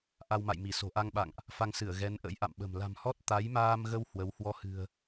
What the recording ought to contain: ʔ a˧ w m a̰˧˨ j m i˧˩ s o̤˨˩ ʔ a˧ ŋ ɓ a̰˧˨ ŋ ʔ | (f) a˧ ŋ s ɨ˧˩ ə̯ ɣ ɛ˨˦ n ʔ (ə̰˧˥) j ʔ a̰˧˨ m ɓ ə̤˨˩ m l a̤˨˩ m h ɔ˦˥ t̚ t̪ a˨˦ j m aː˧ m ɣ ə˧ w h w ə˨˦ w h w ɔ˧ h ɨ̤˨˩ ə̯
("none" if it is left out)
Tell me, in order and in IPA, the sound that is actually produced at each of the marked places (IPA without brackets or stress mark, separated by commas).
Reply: f, ə̰˧˥